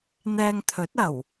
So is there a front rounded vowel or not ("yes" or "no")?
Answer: no